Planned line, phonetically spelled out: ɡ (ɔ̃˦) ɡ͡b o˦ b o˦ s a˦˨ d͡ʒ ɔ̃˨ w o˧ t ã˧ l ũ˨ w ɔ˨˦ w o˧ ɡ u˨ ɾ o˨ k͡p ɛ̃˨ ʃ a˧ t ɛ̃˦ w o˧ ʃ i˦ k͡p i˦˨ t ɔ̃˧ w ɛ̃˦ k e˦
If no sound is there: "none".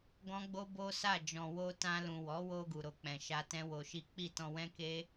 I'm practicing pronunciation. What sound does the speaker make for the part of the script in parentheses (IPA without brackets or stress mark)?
ɔ̃˦